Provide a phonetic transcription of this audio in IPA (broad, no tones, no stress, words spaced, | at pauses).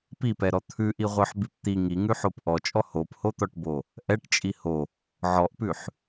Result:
pipɛɾɔ t̪ʰʉʔiʁʷœħbip t̪i ŋiŋʉħop ʔɔt͡ʃʼɔ hophot̪ɔʈbo | ʔɛʈt͡ʃʼi ho | ʕɔʔpʉħ